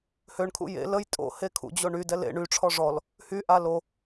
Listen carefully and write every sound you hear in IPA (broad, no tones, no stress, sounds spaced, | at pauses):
h ø ɳ kʰ ṵ j ḛ l ə j tʼ o̰ h e kʰ ṵ d͡ʑ o ɳ y d ɛ l ḛ ɳ y ʈ͡ʂʰ ɔ ʐ ɔ l | h y ʔ a l o